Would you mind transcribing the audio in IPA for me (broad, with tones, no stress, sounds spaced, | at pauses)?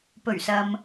p ɵ˨˩ ɥ s ɐ˨ m